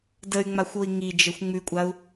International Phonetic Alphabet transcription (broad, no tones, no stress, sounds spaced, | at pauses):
d ə y̯ ŋ͡m a xʷ o i̯ ŋ i d͡ʒ ə xʷ ŋ͡m ʉ kʷʼ a u̯